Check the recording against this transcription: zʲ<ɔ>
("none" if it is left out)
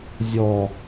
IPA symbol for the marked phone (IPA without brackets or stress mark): ɔ